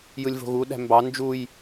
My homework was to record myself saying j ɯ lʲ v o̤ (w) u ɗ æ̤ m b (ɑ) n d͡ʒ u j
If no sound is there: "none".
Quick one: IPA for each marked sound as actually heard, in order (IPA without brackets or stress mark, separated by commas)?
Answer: ɣ, ɑ